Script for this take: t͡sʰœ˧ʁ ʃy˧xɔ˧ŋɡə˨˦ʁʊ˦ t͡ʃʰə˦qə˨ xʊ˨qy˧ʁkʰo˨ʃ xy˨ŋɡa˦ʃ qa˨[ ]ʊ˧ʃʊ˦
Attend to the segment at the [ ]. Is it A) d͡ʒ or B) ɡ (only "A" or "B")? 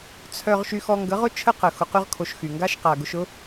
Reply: B